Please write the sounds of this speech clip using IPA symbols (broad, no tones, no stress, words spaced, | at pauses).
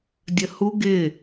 dʲəhu ɡɪ